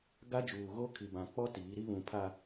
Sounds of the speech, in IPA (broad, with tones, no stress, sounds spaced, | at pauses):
ɡ a˦ d͡ʒ uː˨ ɣ o˦ kʰ i˨ b ã˨ k͡p ɔ˦ t iː˨˦ ɾ i˦ β ũ˨ pʰ a˨